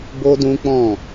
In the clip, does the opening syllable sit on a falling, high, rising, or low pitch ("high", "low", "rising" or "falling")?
high